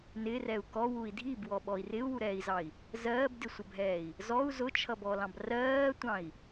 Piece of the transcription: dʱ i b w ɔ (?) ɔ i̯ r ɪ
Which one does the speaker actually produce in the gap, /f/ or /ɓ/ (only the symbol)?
ɓ